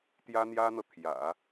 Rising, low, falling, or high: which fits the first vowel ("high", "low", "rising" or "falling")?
high